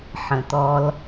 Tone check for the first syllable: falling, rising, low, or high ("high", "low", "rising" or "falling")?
low